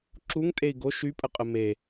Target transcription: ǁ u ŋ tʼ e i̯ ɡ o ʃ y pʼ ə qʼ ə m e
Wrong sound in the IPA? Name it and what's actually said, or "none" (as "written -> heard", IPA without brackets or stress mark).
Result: none